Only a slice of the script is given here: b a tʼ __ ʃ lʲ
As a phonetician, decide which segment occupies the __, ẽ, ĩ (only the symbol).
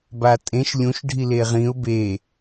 ẽ